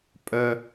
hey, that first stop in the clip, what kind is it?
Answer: ejective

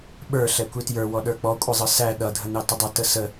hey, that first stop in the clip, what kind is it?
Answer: implosive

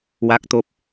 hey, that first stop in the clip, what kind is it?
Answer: plain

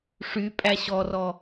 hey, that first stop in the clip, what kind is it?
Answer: ejective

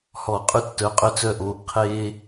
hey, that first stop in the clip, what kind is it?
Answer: ejective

